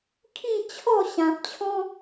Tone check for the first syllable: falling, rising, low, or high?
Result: falling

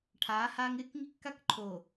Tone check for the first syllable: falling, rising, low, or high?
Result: rising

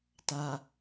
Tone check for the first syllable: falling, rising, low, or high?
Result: low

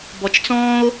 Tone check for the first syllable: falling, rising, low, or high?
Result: low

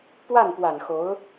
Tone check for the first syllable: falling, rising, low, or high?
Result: falling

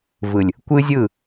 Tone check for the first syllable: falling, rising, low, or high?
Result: low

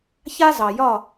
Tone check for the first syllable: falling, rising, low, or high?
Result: high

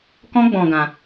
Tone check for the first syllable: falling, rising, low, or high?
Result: high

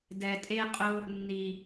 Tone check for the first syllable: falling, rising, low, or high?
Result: low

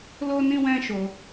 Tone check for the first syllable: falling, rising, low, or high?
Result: high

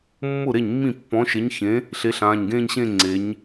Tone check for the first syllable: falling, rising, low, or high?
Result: falling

